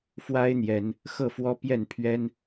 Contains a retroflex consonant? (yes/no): no